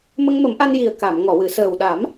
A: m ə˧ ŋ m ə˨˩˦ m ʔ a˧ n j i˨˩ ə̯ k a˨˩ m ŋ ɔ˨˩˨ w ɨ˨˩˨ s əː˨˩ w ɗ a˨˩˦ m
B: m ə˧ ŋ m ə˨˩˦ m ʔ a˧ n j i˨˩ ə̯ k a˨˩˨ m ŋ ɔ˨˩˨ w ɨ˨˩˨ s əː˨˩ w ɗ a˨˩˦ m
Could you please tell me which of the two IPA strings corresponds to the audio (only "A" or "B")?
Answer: B